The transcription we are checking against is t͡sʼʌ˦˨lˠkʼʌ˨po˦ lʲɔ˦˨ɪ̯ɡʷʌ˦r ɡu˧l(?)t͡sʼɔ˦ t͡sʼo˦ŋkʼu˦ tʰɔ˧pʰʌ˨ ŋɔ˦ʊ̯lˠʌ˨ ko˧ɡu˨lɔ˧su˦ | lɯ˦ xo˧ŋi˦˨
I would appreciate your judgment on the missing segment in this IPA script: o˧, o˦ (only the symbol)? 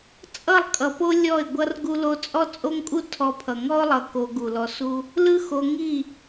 o˧